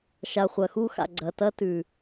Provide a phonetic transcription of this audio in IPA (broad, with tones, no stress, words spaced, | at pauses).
ʃa˨χʷɐ˨xu˦xa̰˨ ɡ͡ǀɐ˨ tɐ˦tʉ˨